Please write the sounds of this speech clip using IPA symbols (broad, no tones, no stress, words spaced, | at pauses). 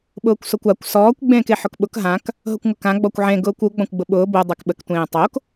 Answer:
ɓʊːkʷsokʷakʷ sɔːkʷ ɡ͡bẽːkeħʊkɓʊk ɦãk | ɦʊkʷŋʊkã ɡ͡bɔkʷʕẽ ɡʊːkʷu ɡ͡bɔ̃kʷɡ͡bʊɓʊː bo dˤekɓək tʷẽːtˤok